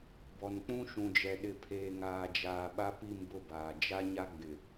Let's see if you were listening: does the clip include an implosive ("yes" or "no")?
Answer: yes